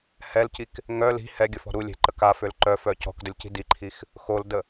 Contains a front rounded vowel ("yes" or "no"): yes